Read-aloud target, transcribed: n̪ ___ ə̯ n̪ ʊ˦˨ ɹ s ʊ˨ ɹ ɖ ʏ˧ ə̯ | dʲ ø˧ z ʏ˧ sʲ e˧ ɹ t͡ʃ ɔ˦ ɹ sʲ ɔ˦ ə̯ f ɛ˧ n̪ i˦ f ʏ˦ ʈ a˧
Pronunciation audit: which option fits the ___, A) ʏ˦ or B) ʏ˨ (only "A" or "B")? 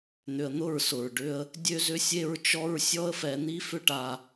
B